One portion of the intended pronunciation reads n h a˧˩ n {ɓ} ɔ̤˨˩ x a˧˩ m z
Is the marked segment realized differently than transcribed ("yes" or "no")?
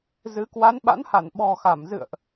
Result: no